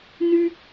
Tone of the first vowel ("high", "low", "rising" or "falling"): high